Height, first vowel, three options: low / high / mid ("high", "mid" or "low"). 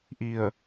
high